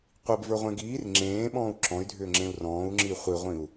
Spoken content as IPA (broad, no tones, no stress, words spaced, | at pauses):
qʷibvə˞ʁʷẽ ɡiːr ŋ͡ǁẽːɓɔ̃ːu̯ ǁɔ̃y̯dʱʏːŋ͡ǁẽu̯ rɔ̃ːu̯ŋ͡ǁi χʷiʁʷĩu̯